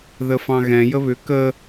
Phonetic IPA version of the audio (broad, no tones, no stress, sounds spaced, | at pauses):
ð ə f ɑ̃ ɣ ɛ̃ j ə β ʏ k ə